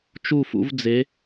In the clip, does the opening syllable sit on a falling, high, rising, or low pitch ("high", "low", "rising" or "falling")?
falling